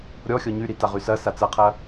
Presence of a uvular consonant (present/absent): present